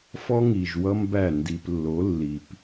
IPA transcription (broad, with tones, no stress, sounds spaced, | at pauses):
f ɔ˦ ŋ i˨ ʒ w ʌ˦ m b æ˦˨ n d i˨ p lː o˨˦ lː i˨ p